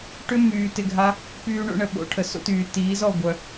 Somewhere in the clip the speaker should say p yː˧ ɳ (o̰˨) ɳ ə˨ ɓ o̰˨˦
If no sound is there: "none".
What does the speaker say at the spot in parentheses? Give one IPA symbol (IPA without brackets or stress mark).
o̰˧